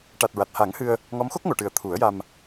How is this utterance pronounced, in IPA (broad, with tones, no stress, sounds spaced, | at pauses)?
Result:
ʈ a˨˩ t̚ ɹ a˨˩ t̚ h a˨˩˦ ŋ h ɨ˧ ə̯ | ŋ ɔ˧˥ m x o˦˥ k̚ ŋ o˨˩˨ ʈ ɨ˨˩ ə̯ t̪ʰ u˨˩˦ ə̯ j a˧ m